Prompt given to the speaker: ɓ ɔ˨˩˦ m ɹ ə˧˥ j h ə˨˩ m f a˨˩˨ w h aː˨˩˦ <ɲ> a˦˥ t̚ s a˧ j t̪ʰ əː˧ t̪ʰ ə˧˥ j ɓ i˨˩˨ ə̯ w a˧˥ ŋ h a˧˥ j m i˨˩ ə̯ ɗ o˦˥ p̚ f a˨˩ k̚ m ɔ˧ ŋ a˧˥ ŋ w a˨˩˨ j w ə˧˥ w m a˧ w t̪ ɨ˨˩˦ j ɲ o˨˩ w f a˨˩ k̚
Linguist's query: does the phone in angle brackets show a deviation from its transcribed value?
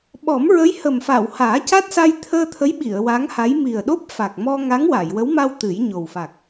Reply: yes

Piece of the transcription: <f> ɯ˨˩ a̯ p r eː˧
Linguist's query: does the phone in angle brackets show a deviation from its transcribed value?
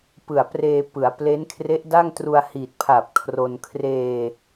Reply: yes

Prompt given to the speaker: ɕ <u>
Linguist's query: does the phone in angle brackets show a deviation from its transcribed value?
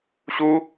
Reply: no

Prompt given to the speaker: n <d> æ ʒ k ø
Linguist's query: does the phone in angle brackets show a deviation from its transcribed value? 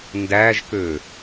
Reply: no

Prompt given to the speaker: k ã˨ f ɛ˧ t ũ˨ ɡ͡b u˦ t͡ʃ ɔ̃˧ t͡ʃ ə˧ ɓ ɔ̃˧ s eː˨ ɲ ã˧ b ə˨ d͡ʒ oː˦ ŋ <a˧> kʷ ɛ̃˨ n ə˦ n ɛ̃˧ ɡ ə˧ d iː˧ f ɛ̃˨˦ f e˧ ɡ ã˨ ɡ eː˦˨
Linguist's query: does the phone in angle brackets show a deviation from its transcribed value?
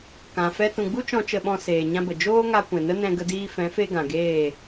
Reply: no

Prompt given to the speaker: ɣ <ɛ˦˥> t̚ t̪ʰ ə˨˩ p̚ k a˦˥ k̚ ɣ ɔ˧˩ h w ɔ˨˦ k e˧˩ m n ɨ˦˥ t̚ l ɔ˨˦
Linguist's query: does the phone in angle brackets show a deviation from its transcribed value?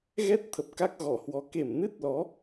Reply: no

